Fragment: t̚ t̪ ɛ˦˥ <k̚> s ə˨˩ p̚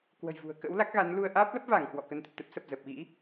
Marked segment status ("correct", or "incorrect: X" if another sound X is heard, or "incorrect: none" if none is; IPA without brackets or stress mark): incorrect: p̚